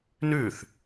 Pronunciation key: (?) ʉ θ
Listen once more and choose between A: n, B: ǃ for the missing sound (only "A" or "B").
A